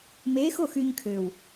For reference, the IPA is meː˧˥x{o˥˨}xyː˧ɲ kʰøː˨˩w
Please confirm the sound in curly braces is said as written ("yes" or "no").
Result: yes